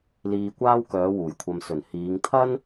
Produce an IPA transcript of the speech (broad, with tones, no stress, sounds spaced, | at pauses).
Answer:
l iː˧ kʷ aː˥ w k œː˨˧ w uː˨˩ j kʷʰ ɐ˧ m s ɵ˨˩ n h iː˨˧ ŋ t̪ʰ ɐ˥ n